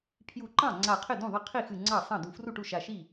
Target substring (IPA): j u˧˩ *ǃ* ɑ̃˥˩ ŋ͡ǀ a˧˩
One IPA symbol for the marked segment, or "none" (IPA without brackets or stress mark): ǃ